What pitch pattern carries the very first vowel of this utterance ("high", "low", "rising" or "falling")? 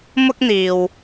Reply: high